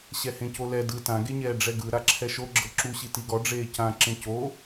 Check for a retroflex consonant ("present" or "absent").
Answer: present